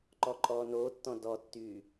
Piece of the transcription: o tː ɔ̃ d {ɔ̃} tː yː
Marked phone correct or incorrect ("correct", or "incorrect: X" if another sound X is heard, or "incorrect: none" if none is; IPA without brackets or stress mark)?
incorrect: ɔ